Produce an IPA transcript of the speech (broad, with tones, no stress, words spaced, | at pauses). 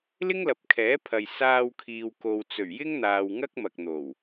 lɪ˥ŋlɐ˨p̚kʰɛː˨˥pʰɐ˨j saː˧wkʰiː˨wko˨w t͡sɵ˨˩ɥjɪ˥ŋn̪aː˨w ŋɐ˥k̚mɐ˨k̚n̪o˨˩w